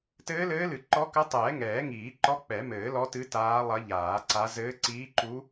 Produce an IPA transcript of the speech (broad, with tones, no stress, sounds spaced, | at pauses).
t ɘː˧˥ l ɘː˧˥ l ɨ˨˩˦ ǃ ɔ˧˥ k ɐ˧˥ tˤ ɛː˨˩˦ ŋ ɛː˨˩˦ ŋ iː˨˩˦ ǃ ɔ˧˥ k͡p ɛ˨˩˦ m ɘː˨˩˦ l ɔ˧˥ t ɨ˧˥ t aː˧˥ lˠ ɐ˧˥ ʎ aː˨˩˦ ǀ a˧˥ z ɘː˧˥ ǀ iː˧˥ ǃ u˧˥